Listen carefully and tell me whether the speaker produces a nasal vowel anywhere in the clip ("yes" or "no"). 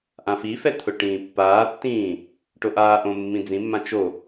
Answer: yes